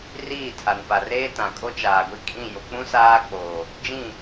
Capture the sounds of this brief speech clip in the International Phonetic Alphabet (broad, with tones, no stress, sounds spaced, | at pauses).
r iː˦˨ tʰ a˨ n p a˨ r eː˦ t ã˨ kʼ o˦ t͡ʃ aː˨ ɡʷ i˦ kʼ ĩ˦˨ j o˨ k͡p ũ˦ s aː˦ k͡p oː˨ | d͡ʒ ĩ˦˨